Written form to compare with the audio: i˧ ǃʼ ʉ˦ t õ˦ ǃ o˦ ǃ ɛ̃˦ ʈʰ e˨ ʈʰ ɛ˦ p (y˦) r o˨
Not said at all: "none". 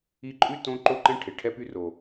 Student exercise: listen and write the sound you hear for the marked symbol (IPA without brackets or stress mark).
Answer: y˦